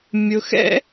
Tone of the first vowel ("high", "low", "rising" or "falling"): low